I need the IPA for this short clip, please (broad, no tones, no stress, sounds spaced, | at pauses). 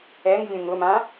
ɛ ŋ vʲ ũ ŋ ʊ m ã